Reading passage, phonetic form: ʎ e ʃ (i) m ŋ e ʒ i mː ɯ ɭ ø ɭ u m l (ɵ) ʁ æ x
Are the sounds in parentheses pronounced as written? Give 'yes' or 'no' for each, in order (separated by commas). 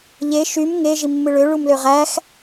no, no